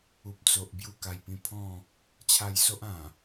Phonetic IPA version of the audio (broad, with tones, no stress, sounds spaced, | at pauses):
u˨ p̚ t͡s o˨ ʔ b j u˧ k a˨˩ j p ĩ˧ pʰ ɔ̃˥˧ | t͡ɕʰ a˧ j s o˦ ʔ ã˨˩